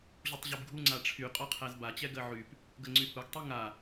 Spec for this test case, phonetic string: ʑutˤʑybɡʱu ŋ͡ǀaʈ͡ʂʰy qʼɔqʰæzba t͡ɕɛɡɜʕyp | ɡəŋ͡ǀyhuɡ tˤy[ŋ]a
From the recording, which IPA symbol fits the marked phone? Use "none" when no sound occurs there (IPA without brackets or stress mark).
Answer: ŋ